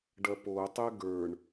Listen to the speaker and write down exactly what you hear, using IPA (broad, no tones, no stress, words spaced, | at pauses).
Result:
ɖɐpotˤɛ ɡə˞ɳ